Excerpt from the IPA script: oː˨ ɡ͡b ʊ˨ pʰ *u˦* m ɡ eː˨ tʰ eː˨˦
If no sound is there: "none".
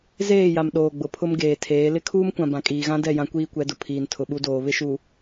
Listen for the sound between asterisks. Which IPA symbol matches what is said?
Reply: ʊ˦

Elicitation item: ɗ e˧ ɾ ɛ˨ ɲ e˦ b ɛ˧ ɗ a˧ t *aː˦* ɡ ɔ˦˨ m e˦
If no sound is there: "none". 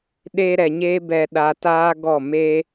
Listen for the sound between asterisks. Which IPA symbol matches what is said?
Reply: aː˦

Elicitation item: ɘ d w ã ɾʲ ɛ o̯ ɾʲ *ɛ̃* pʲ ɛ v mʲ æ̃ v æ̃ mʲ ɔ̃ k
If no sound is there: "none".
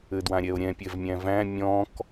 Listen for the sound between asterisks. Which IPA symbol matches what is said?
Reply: ɛ̃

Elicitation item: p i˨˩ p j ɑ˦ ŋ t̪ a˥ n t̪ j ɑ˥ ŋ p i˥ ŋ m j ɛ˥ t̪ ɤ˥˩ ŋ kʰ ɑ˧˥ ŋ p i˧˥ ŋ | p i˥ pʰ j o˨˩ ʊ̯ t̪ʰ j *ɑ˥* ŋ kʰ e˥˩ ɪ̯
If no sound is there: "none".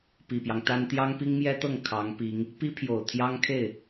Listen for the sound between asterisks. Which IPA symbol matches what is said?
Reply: ɑ˥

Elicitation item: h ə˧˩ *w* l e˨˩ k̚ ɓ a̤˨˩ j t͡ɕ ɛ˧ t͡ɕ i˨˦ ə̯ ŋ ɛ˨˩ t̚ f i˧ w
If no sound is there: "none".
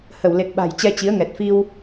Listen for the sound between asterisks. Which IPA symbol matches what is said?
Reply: w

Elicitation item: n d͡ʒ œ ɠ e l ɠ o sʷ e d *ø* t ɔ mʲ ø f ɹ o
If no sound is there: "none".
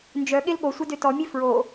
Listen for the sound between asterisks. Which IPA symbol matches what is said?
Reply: ø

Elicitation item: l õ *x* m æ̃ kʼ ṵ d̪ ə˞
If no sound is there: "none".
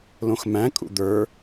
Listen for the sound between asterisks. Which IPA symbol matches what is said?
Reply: x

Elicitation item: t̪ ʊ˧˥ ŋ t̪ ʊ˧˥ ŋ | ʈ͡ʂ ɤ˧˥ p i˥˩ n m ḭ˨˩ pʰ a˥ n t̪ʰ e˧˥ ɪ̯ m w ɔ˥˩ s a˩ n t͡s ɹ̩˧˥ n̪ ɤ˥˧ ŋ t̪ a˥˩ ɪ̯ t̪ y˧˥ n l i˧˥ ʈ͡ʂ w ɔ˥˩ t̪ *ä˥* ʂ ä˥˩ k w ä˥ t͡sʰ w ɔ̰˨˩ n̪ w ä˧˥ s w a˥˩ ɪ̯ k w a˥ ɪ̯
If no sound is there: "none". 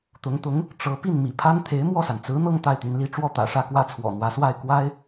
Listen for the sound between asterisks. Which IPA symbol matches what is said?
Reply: ä̰˨˩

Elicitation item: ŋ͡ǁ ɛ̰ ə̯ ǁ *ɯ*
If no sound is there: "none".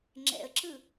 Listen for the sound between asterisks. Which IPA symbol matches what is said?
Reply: ɯ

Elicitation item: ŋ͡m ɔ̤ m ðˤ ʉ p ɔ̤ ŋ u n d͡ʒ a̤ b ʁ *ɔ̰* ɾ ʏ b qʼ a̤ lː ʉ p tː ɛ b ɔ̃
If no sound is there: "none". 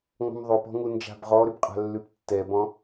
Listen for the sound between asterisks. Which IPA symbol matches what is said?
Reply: ɔ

